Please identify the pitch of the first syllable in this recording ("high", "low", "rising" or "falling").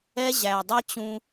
high